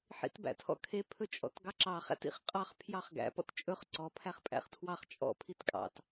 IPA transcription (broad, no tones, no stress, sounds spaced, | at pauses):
ħ ḭ t b æ̰ tʰ ɔ̰ kʰ e pʰ ɵ t͡ʃʼ ɔ̰ t ɡ ɑ ǁ ɑ χ æ̰ t ḭ χ qʼ ɑ χ pʰ j ɑ χ ɡ æ̰ p ɔ̰ t t͡ʃʼ ɵ χ ǀ ɔ pʰ æ χ pʼ æ̰ χ tʰ w ɑ χ t͡ʃʼ ɔ̰ pʰ i t kʼ ɑ̰ t